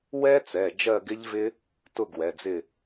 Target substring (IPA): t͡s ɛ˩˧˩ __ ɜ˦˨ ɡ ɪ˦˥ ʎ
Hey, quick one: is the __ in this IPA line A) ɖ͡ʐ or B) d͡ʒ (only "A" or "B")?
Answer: B